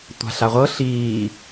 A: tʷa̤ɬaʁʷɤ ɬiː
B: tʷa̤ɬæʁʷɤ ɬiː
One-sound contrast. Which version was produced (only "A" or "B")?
A